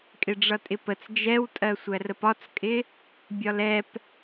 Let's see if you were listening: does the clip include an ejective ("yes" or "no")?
yes